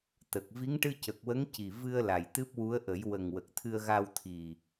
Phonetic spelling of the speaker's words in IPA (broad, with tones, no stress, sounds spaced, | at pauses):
t̪ ə˨˩ k̚ v i˧˥ ŋ ʈ ɨ˧ c ə˨˩ k̚ w ə˧˥ ŋ c i˨˩ v ɨ˧ ə̯ l a˨˩ j t̪ ɨ˦˥ p̚ w u˧˥ ə̯ ʔ ə˨˩˦ j w ə˨˩ ŋ w ə˨˩ k̚ t̪ʰ ɨ˧ ə̯ ɣ a˧ w t̪ʰ i˨˩